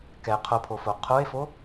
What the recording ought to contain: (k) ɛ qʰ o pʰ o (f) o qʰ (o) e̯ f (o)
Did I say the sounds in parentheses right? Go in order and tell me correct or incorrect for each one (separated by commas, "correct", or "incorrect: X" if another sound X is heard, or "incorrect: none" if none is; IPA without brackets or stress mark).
correct, correct, correct, correct